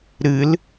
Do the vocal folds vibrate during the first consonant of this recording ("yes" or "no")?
yes